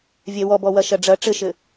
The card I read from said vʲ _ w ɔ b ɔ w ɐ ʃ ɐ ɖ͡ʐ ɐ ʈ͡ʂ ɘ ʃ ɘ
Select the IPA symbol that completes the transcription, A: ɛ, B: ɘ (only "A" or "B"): A